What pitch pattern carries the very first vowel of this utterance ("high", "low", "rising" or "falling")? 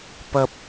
high